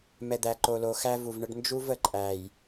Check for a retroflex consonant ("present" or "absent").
present